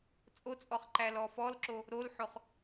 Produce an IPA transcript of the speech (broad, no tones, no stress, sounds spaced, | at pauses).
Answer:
t͡sʼ o t͡sʼ ɔ χ ǃ æ l ɔ f ɔ l ǁ o | ɾ o l ħ o χ